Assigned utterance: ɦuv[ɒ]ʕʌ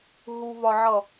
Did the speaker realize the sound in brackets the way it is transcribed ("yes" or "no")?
yes